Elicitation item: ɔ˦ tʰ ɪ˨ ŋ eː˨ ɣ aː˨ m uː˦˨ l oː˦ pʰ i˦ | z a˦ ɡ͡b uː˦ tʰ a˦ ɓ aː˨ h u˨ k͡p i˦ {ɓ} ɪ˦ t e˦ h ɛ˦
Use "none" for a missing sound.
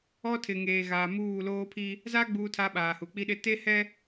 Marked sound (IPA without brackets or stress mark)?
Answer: ɗ